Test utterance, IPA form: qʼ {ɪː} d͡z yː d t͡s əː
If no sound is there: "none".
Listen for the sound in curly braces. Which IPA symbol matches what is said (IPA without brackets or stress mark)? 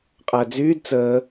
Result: əː